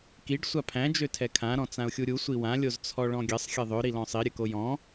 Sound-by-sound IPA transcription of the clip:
kiɖ sʷapʰæ̃ d͡ʒøtʰɛkʰã ɾɔ̃t͡sãʊ̯xʲuɾʲu sʷiwã lʲozt͡sʰɔɭɔ̃ɡʲɘsˤ xʲɘðˤø ɾilɔ̃sˤi ɾʲɘkojɔ̃

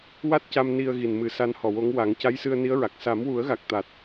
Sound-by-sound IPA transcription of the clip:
wa˦˥t̚ca˧m ni˧ə̯ɣi˨˩nmɨ˨˩˦ sa˧˥nhɔ˨˩wo˧˥ŋ wa˨˩˦ŋ ca˧˥jsɨ˧ə̯ni˧˥ə̯ɹa˨˩k̚ sa˨˩˦mwu˨˩˦ə̯ɣa˨˩k̚ t̪a˨˩t̚

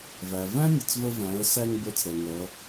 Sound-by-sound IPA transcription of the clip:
væ˩væ̃˥ nʲə˩t͡svə˧væ̃˩˧ə̯sæ˧ŋ bə˞˧˥t͡sɾɛ˩ŋʌ˩˧

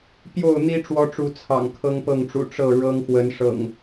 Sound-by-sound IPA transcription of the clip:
pjo˥˨ʊ̯n̪i˦ ʈ͡ʂwɔ˦ʈ͡ʂu˨˦t͡sʰɑ̰˨˩ŋ kʰɤ˦ŋpɤ˥˨ŋʈ͡ʂṵ˨˩ ʈ͡ʂɤ˥˨ɻɤ˦ŋxwə˨˦n ʂɤ̰˨˩ŋ

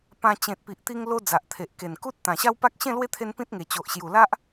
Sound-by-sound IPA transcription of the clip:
pã˧ t͡ɕẽ˨t̚pi˨ʔt̪i˧ŋ lo˦ d͡za˨ʔt̪ʰe˨ʔke˨˩n ku˦t̚ t̪ã˨˩ɕa˦wpa˦k̚ ɕẽ˥˧lwe˥˧t̪ʰe˧n pĩ˦t̚ŋe˨˩ t͡ɕo˨ʔɕju˨˩ la˦ʔ

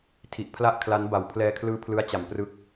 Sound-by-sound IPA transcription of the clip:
tʰi˨˩ʔpʰla˥˩ʔkʰla˦˥n ba˨˩wpʰlɛː˧kʰlɯː˦˥ pʰlɯ˦˥a̯t͡ɕa˨˩mprɯ˦˥k̚

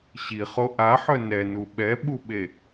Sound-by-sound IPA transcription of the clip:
ɕiχo ʔaħœ nɛnu ɓɛɓuɓe

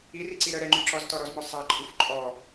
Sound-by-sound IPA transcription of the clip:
iriǀi ɾə ɾɛŋ͡ǃy ǁɔztɔɾɔzmɔ sˤaǃʼuf ǃʼɔ

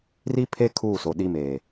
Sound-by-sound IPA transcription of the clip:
ri˦pʰe˦ kʰuː˦˨soː˨ɗi˦meː˨

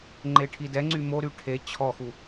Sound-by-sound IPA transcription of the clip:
ŋ͡ǃeʈʰidɛŋ͡ǀy moɾy ʈʰe t͡ɕʰɔxu

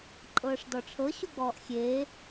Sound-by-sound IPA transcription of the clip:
ǃʼɤːʂdɔʈ͡ʂʰɤ ɕuɡ͡bɔːʔxʲeː

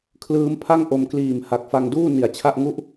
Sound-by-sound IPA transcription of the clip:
kʰlɯː˦˥mpʰa˥˩ŋ ʔo˧mkliː˨˩m ha˨˩k̚fa˧ŋduː˥˩ ni˨˩a̯t͡ɕʰa˥˩ʔ ŋu˥˩ʔ

